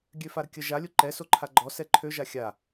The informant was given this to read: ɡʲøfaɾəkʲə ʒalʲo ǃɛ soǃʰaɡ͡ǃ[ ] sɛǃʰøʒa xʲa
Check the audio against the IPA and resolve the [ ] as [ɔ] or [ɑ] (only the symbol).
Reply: ɔ